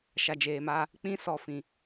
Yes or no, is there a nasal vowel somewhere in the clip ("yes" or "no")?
yes